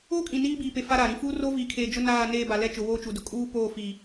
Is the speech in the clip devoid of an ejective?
no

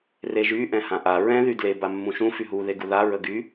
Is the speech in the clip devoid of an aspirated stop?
yes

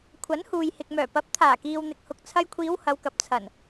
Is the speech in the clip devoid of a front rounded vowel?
no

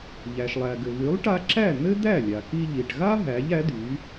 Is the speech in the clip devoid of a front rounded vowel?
no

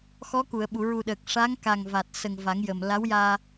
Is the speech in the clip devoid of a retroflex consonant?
no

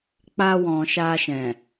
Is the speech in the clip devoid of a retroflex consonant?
yes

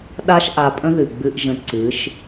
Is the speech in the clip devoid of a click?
no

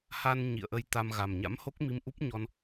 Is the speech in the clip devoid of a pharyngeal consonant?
yes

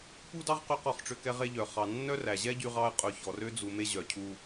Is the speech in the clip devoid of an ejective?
no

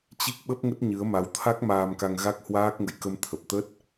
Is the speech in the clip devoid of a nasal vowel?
yes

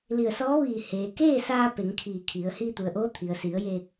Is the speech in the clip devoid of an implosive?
yes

